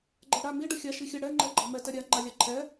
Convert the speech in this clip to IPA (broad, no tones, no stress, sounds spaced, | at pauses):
ɡ͡ǃ ɛ ɽ a m i ɖ ə xʲ a ʃ i xʲ ə ɽ ɛ ŋ͡ǃ ɛ ɡ͡ǃ ɑ m ɛ t ɛ ɾʲ a ŋ͡ǃ a lʲ ɑ ǃʰ ɛ